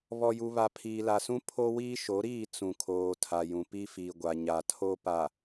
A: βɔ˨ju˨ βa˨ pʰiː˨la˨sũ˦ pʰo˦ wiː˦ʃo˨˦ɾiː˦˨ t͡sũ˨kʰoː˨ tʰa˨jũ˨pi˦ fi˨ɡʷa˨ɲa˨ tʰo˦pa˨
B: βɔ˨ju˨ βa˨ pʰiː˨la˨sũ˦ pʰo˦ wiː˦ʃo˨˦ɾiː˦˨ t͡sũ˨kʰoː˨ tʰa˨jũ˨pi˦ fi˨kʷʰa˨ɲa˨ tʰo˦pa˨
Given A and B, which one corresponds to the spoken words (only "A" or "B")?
A